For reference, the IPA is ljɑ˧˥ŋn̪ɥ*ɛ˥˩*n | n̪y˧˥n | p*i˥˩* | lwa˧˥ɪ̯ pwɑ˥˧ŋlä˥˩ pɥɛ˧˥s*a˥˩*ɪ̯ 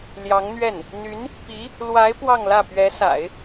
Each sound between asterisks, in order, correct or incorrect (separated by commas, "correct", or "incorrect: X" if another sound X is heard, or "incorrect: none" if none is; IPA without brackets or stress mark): correct, incorrect: i˧˥, incorrect: a̰˨˩˦